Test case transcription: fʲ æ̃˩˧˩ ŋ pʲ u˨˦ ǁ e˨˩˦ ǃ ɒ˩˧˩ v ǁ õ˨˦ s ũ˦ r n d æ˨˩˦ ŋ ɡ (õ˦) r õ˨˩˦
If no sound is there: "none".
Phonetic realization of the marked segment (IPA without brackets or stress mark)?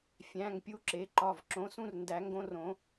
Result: õ˦